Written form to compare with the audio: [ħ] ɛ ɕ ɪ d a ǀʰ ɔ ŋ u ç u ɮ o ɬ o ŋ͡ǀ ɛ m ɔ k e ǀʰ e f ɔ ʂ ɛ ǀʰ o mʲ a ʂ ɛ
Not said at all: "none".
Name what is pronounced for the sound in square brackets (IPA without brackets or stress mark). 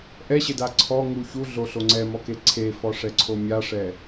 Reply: ʔ